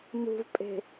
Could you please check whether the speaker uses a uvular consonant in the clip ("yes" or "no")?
no